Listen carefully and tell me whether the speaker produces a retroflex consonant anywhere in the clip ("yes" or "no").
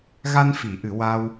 no